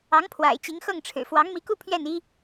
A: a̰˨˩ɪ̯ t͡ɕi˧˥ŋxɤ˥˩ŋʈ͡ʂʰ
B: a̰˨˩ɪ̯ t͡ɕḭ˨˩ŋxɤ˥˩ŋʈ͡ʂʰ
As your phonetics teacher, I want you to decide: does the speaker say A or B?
A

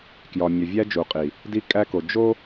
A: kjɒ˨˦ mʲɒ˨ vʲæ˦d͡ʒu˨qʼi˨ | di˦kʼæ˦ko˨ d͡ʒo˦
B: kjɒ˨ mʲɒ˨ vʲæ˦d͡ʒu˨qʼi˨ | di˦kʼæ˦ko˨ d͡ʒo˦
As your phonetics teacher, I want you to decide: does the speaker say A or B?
B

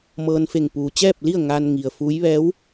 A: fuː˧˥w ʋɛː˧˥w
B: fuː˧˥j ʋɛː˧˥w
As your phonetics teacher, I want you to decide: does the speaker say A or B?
B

